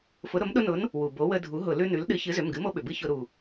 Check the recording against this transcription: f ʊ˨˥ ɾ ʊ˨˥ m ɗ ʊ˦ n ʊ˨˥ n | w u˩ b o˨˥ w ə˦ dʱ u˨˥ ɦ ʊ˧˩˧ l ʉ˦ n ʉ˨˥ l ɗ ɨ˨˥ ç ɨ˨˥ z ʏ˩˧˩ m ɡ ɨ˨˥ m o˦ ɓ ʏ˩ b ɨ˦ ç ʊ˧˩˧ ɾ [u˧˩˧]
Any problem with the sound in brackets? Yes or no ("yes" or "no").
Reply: yes